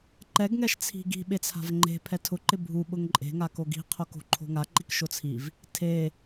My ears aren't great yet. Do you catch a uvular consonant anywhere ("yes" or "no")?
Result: yes